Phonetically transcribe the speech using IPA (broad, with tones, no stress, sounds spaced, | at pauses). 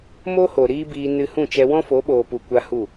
m o˦ h o˨ ɾ iː˦ b iː˧ n ɨ˧ h ũ˦˨ t͡ʃ ɛ˧ w ɔ̃˦ f o˨˦ ɓ oː˨ p u˨ kʷ a˦ h u˦˨